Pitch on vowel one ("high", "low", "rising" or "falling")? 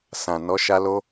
low